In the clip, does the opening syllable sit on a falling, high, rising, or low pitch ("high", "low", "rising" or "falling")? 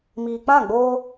low